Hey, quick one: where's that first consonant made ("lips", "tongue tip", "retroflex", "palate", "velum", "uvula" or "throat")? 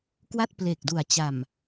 velum